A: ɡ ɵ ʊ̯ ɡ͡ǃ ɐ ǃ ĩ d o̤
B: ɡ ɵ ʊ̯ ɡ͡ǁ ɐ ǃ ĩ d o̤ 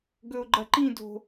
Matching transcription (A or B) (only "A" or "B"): A